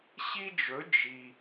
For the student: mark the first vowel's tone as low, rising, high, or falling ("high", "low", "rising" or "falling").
high